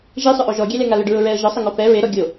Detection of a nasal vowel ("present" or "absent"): absent